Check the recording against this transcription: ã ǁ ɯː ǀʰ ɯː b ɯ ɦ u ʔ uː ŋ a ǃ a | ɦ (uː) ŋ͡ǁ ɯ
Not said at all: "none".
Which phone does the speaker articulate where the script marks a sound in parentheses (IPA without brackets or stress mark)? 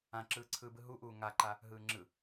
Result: ɯː